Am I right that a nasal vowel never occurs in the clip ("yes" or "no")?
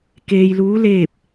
yes